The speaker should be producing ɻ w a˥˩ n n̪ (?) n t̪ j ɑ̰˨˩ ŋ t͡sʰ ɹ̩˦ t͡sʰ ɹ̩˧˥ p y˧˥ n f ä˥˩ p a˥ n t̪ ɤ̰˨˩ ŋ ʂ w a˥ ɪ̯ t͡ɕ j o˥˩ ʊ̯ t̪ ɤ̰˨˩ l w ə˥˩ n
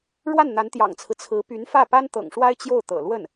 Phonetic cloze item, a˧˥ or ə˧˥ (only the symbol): a˧˥